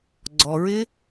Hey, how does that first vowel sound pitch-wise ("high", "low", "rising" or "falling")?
low